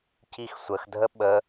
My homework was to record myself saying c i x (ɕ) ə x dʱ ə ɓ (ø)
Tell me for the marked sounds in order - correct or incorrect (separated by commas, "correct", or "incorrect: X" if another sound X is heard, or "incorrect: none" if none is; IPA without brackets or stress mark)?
incorrect: sʷ, incorrect: ə